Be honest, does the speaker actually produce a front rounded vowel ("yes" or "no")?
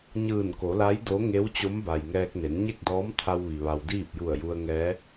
no